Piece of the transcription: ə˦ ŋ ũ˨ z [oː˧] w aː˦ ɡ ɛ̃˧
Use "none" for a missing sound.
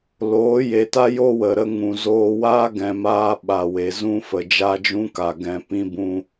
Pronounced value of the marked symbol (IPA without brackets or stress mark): oː˧